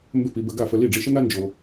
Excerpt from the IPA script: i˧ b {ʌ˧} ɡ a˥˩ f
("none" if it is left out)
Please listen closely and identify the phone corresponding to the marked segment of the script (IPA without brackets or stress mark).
ə˧